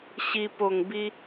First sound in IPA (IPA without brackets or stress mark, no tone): ɕ